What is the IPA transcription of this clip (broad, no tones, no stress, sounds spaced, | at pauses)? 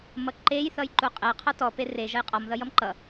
m ʌ ǃ e j θ ʌ j ǃ u qʼ e qʰ ɔ t ɔ p e r e ʒ ʌ j qʼ ɔ m ð ʌ j ʌ m ǃ ʌ